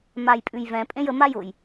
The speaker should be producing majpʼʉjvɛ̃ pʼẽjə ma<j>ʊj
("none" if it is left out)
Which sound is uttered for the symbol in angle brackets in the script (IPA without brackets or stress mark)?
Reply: j